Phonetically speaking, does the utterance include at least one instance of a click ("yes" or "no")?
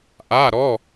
no